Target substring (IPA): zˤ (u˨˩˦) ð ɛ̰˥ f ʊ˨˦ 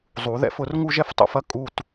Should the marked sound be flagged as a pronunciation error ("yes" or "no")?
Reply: no